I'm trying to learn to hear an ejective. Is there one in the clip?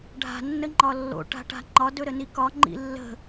no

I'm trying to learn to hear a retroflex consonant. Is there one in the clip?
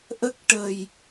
yes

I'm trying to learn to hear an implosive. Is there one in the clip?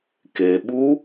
yes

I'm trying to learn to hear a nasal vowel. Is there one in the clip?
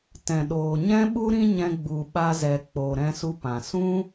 yes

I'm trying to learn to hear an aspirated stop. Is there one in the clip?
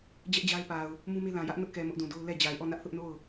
no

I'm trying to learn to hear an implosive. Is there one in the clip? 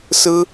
no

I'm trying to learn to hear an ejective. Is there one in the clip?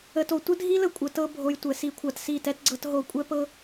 yes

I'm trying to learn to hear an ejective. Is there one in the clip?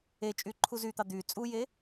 yes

